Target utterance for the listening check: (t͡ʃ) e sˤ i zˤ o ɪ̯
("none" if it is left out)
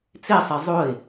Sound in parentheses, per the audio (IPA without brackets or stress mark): t͡s